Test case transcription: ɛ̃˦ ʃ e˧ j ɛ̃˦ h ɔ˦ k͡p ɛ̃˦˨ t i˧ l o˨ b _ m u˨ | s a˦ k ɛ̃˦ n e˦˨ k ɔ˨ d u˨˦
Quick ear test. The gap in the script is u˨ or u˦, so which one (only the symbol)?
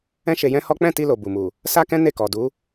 u˨